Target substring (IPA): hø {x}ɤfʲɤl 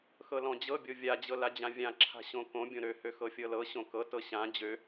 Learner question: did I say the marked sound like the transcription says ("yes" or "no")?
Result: yes